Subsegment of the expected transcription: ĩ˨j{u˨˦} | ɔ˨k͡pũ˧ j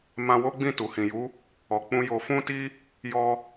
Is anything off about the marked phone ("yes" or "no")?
no